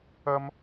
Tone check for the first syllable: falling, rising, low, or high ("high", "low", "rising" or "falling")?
high